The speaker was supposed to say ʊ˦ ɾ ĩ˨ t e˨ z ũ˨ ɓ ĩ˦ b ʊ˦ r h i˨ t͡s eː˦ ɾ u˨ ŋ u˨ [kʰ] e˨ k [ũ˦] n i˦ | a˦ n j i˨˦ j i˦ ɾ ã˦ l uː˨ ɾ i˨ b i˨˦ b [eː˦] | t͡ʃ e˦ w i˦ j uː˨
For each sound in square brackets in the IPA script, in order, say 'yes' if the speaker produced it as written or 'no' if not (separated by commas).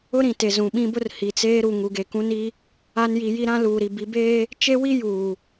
no, yes, yes